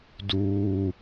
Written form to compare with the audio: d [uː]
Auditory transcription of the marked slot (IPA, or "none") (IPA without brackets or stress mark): uː